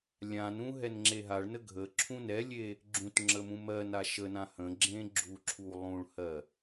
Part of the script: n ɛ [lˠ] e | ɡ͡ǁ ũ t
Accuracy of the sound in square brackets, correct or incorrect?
incorrect